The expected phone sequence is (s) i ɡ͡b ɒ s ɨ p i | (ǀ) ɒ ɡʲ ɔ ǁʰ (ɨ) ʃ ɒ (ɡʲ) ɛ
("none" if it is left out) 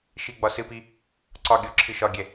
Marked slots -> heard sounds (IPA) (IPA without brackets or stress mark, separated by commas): ʃ, ǀ, ɨ, ɡʲ